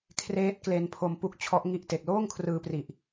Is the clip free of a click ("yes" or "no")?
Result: yes